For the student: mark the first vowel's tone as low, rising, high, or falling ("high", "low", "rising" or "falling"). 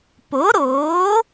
rising